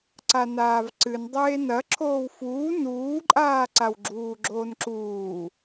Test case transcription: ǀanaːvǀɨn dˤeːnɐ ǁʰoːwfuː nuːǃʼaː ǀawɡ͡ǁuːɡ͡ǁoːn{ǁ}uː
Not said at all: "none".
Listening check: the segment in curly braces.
ǁ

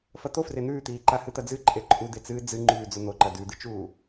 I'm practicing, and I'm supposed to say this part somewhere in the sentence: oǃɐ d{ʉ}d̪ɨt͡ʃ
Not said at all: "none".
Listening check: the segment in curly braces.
ʉ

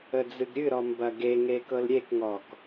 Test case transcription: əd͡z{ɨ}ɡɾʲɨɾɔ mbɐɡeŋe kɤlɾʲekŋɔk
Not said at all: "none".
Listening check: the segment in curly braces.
ɨ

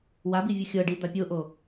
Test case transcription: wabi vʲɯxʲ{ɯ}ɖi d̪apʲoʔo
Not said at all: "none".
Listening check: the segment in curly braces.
ɤ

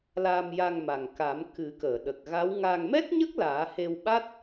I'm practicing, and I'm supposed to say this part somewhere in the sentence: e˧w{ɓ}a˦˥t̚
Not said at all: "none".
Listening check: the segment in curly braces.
ɓ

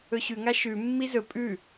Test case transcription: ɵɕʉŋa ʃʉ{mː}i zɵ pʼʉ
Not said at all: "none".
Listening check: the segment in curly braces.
mː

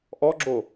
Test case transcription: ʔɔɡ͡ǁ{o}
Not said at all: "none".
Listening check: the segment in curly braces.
o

